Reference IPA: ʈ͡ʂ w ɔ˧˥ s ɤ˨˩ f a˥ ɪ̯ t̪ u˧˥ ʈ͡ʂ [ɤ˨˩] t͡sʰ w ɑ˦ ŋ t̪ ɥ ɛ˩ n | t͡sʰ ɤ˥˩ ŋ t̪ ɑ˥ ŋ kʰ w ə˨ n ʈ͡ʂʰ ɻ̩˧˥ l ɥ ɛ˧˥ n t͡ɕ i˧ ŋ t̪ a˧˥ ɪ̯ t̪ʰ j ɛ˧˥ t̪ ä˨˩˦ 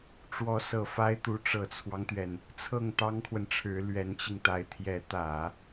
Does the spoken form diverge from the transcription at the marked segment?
no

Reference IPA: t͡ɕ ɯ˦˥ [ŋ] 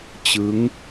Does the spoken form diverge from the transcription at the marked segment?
no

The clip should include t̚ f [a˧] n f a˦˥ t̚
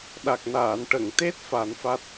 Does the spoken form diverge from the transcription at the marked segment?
yes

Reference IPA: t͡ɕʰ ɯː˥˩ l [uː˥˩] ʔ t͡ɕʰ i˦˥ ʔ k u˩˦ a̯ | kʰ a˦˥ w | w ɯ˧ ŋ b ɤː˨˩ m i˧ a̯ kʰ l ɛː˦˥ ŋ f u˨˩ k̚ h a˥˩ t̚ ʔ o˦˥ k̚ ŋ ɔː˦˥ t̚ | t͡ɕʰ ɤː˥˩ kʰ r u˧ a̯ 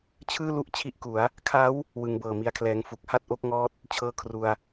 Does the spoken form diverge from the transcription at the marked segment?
yes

